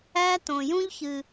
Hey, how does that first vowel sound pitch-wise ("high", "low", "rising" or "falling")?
high